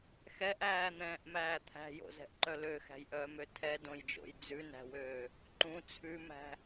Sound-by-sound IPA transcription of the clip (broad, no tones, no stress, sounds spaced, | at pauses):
x ɛ ʔ æː n̪ ɛ̃ː ʔ m æː t̪ʰ æ̤ j o̰ z ɛ̤ ʔ ǃ œ l ø x æ̤ j ʔ œː m ø tʰ ɛ d õ j d͡ʒ o̰ j d͡z ʉ n æ̤ w øː | ǃ ũ t͡sʰ ʉ m æ̤